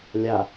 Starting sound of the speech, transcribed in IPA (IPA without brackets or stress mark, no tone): lʲ